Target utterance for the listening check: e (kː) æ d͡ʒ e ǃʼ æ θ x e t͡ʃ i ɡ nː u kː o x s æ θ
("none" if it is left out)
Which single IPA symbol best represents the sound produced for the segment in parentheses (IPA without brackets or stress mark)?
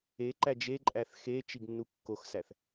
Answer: ǃ